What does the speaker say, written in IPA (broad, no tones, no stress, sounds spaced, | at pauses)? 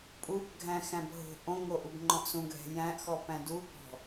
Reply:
pʼ u b ɡʱ æ̃ x æ̃ b ɦ o̤ ʔ õ ŋ o ʔ u b ŋ͡ǃ ɔ̃ ʔ s ũ ɡʱ ɛ̤ j æ̃ ʔ x ɔ p æ̃ d u b ɔ̤